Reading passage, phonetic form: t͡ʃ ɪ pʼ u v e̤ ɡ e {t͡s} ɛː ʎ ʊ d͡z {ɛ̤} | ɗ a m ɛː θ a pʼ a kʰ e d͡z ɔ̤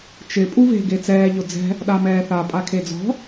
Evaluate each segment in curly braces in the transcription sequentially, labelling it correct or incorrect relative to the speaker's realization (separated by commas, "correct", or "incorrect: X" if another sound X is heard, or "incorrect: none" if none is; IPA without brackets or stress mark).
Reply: correct, correct